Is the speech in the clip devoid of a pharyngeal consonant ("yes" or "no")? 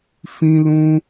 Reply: yes